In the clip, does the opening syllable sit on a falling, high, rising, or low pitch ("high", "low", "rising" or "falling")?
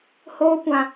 high